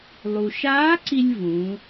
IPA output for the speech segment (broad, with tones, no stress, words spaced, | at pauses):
lˠu˩ʃaː˧˥ǀi˧lʲ vũ˩˧